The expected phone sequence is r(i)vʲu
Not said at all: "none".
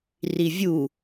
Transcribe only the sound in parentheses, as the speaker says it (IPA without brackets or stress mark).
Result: i